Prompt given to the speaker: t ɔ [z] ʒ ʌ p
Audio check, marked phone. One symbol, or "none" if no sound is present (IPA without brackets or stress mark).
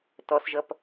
s